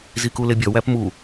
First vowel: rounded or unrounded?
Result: unrounded